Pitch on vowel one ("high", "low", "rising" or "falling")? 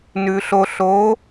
low